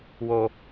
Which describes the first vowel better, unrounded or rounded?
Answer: rounded